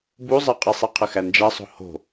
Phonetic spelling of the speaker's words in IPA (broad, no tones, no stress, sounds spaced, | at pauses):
b u zˤ ɛ qʼ i sˤ i qʰ ə x æ n d͡ʒ æ sˤ o̤ h o̤